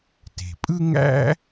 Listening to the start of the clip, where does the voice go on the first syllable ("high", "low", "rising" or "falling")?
low